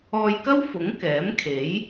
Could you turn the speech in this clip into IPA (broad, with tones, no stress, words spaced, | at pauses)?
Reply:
ɔː˧jkɐ˥wfʊ˨˥ŋ kɛː˨˥mkʰe˨˥j